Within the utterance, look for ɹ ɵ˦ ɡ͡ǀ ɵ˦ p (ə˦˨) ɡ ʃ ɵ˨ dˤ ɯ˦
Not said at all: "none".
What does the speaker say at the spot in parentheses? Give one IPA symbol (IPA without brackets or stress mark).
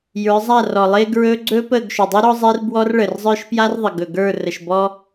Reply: ə˦˨